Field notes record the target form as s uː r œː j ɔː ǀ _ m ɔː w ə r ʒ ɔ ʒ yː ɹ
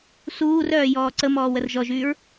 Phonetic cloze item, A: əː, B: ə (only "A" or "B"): B